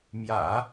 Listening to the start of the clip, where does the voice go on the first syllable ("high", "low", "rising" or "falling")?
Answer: low